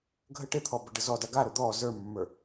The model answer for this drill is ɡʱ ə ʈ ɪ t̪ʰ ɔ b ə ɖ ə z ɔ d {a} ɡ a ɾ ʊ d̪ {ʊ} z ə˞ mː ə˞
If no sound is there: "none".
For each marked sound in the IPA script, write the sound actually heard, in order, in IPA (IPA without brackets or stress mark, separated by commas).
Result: a, ɔ